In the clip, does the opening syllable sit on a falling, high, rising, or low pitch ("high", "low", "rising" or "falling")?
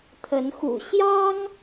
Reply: rising